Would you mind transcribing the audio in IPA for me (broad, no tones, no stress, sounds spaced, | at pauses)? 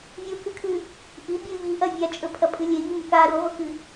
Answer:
vʲ u k ɨ kʰ ʉ | ʔ i bʲ ʉ ʎ i ʔ ɐ vʲ a t͡ʃʼ ɵ pʰ ɐ pʼ ɨ lʲ e ʎ u m ɵ k a ɾ u ʁʷ ɨ k ɨ